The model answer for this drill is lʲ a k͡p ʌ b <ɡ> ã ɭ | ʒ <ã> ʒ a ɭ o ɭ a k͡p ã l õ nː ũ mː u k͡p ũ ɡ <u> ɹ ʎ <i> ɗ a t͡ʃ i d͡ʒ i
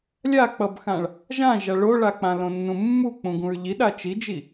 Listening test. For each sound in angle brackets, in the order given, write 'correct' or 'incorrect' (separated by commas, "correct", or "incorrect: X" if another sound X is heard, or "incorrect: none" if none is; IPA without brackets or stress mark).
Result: incorrect: x, correct, incorrect: ũ, correct